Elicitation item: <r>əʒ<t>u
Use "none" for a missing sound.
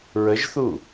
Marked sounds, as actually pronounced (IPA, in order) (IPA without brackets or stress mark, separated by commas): ɹ, θ